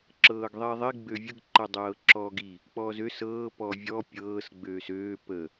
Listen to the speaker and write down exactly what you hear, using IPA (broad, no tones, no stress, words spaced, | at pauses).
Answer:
ǁɤːɡðˤiðˤi ɡ͡bøvʲəɡ ǃɤdˤɤːǁɔːɡi | k͡pɔːzø sɤː pɔvʲɔ pʲɤːs ɡ͡bøːsøː pə